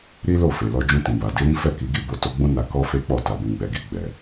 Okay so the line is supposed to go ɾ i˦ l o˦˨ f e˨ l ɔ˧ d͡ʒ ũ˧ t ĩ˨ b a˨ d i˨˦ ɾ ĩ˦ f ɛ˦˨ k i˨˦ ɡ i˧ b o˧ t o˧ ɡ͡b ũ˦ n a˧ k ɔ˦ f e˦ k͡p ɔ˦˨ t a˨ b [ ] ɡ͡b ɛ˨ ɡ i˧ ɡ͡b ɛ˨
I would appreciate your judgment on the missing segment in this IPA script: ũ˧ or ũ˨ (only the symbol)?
ũ˨